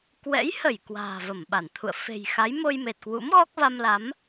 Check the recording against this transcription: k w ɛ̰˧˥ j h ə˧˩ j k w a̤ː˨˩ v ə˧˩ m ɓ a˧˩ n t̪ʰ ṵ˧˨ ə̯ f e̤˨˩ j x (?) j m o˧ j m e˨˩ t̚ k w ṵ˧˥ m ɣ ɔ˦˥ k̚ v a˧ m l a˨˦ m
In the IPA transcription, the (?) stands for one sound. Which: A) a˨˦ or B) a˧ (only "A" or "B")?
A